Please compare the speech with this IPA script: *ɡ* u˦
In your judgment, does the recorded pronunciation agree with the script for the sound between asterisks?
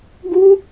yes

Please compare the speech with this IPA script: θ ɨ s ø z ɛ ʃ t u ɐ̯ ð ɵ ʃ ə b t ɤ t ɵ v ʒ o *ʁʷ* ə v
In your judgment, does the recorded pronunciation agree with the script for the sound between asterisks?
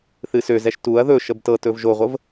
yes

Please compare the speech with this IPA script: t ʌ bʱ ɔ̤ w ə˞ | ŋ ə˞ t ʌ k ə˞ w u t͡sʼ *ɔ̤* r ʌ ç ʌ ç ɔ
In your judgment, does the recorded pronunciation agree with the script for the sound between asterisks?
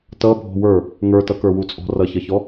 yes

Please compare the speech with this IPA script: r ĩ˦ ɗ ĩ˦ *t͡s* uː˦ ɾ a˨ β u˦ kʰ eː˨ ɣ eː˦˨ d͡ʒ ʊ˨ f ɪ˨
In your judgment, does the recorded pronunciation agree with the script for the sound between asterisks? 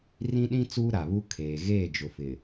yes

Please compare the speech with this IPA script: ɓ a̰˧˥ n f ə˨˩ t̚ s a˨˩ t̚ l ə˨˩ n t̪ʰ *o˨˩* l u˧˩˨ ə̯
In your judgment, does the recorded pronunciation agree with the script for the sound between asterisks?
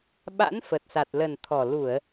no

